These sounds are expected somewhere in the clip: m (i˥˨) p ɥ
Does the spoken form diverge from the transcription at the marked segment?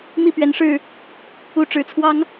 no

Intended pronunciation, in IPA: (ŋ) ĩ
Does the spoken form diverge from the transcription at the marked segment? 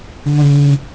yes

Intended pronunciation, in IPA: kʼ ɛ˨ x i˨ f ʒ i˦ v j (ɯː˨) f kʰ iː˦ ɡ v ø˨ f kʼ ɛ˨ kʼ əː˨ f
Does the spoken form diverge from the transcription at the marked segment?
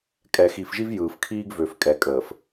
no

